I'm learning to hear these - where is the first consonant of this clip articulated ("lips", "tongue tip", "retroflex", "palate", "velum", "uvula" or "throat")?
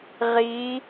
uvula